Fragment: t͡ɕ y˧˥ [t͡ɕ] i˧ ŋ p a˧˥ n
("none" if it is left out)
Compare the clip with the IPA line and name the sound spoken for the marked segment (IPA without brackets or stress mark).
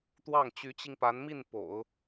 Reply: t͡ɕ